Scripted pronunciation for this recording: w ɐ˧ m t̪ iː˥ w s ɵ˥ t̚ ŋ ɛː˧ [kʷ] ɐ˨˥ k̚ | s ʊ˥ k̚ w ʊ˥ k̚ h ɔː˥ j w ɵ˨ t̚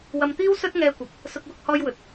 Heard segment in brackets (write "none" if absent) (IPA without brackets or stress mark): kʷ